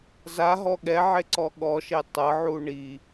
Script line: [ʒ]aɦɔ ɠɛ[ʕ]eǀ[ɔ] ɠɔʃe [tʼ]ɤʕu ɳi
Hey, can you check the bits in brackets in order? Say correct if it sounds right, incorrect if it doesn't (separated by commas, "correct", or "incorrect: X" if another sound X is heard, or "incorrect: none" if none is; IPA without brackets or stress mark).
incorrect: z, correct, correct, incorrect: tˤ